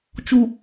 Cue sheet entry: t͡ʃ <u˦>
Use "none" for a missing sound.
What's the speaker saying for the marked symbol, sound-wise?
u˨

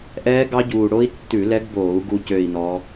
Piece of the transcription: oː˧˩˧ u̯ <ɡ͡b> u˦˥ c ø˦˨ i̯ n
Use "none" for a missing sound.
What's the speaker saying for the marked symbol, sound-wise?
ɡ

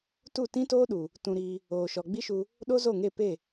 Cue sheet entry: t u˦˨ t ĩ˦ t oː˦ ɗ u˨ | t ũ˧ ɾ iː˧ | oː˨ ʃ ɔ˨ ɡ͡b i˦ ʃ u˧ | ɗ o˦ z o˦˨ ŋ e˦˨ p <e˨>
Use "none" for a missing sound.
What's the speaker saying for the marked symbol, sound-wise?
e˦˨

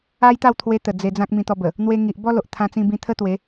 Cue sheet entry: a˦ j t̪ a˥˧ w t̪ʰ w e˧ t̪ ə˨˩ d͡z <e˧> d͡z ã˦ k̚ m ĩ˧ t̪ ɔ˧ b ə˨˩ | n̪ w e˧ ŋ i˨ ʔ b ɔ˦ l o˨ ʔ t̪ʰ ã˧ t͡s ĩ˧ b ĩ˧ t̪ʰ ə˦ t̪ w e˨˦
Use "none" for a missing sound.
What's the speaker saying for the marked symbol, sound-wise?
e˧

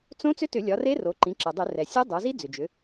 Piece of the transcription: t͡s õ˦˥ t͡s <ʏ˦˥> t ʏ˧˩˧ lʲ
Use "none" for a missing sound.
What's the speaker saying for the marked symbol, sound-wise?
ʏ˦˥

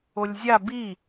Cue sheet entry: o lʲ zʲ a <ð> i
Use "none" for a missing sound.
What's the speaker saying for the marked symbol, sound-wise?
b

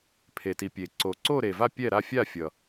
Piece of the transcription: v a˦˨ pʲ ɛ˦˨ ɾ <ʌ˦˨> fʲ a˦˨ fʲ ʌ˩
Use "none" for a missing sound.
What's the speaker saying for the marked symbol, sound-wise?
a˦˨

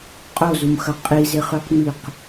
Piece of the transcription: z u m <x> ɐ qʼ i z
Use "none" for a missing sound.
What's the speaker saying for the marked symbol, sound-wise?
x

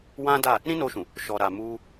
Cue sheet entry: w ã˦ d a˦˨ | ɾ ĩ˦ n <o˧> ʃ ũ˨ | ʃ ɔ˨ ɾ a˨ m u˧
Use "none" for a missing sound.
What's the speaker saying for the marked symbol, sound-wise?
o˧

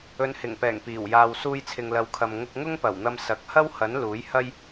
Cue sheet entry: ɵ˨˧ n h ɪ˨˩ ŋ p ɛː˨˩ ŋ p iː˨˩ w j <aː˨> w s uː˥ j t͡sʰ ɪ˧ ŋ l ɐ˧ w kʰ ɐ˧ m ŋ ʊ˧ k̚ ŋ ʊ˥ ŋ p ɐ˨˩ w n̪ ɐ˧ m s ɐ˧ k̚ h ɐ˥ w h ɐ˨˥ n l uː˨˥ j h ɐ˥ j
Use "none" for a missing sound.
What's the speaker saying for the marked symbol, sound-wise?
aː˨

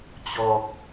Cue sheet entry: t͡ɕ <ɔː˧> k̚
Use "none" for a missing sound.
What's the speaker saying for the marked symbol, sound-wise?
ɔː˧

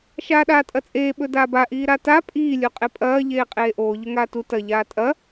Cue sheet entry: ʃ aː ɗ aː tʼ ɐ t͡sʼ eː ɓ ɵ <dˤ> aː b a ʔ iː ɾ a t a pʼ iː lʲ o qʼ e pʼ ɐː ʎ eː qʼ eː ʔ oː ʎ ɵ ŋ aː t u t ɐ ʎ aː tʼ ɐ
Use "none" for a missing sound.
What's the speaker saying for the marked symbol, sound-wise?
d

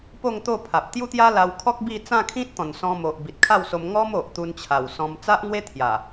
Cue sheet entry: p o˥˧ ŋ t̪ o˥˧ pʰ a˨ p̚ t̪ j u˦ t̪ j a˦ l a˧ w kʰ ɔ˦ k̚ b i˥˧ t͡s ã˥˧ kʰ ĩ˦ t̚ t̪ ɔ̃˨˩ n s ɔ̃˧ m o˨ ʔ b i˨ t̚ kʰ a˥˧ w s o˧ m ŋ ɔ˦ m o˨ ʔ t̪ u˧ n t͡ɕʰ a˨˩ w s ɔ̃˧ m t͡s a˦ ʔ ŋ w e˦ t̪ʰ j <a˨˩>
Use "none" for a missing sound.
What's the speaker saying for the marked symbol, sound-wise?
a˨˩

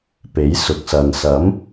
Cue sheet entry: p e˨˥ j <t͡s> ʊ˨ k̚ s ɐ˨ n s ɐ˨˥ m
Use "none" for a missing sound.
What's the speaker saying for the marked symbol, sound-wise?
s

